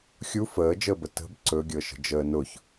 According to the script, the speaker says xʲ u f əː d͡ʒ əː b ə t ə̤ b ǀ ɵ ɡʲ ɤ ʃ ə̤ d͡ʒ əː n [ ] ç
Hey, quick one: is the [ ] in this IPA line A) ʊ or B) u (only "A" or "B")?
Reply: A